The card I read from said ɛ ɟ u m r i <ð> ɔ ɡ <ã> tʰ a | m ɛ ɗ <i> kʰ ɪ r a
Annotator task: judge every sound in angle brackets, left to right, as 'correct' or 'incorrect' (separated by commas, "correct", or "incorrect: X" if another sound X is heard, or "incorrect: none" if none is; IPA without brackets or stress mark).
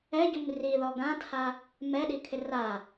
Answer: correct, correct, correct